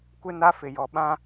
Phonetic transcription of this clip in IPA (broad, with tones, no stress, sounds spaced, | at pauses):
kʷ e˦ n a˦ f ɪ˨ j ɔ˨ ɓ ã˦